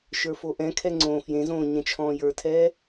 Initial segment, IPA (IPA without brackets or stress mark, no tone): ʃ